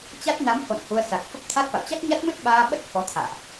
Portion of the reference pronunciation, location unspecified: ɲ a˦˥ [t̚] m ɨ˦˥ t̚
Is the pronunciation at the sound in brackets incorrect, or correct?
correct